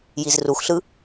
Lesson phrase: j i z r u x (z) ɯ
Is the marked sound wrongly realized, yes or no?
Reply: yes